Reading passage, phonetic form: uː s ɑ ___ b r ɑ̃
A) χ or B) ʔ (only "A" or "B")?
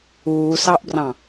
B